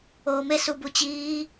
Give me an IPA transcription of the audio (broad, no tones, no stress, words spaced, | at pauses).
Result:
oːme subut͡ɕiː